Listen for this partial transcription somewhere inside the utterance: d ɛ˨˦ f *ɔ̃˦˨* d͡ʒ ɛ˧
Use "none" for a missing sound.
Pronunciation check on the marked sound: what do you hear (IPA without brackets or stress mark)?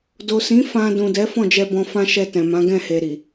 ɔ̃˦˨